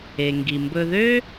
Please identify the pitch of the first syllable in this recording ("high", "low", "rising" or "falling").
low